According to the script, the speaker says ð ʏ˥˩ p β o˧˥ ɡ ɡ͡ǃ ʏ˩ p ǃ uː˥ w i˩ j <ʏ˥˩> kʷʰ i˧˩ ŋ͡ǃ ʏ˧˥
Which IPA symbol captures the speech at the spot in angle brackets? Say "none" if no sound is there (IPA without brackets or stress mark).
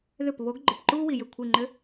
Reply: ʏ˥˩